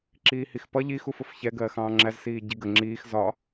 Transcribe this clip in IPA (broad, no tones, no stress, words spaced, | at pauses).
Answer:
ǁiːhixpʌ ʎi xufʊfçɛ ɡɜːxɑ̃ːŋ͡ǁæz siːɟiɡə ŋ͡ǁiːx zɒ